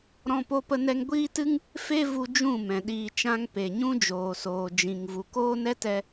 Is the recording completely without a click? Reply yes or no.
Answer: yes